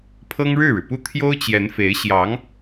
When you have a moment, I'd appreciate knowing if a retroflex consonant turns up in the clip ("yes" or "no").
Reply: yes